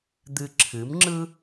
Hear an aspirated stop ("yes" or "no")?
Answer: yes